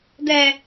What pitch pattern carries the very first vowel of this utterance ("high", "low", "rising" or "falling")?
low